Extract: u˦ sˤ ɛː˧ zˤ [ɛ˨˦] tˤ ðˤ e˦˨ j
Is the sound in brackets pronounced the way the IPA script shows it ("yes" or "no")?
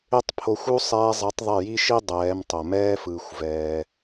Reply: yes